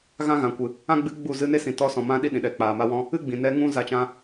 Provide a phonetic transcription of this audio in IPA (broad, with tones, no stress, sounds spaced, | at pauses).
ɣ ã˦ ɣ ã˨ kʷ ɨ˨ | ã˦ ɡ͡b ɨ˧ ɡ͡b u˦˨ z ɨ˧ n e˦ s ĩ˨ t ɔ˧ s ɔ̃˨ m ã˧ ɗ i˦ ɗ ĩ˨ ɗ ɛ˨ k͡p aː˨ m a˧ w ɔ̃˧ | ɨ˦ ɡ͡b ĩ˨ n ɛ˧ ŋ ũ˦ z a˧ t͡ʃ ã˧